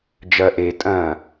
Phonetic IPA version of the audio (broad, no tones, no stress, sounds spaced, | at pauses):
d͡ʒ ɐ ʔ e tʼ ɐ̃